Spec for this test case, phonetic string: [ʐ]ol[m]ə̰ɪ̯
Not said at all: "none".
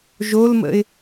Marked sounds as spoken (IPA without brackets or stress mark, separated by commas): ʒ, m